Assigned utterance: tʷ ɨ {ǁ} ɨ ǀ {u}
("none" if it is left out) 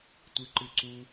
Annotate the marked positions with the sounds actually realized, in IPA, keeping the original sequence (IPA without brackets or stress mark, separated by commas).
ǃ, u